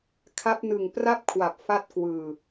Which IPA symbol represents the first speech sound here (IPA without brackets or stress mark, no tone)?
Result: kʰ